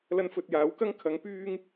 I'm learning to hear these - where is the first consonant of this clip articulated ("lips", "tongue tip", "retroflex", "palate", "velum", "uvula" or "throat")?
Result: tongue tip